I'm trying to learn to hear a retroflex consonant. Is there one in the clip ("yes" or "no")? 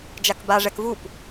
yes